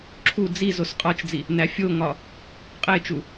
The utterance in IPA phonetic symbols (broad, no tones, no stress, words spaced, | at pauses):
ǁʰu d͡zizos qʼɒt͡ʃd͡zi | næfʲoŋɒ | qʼet͡ʃu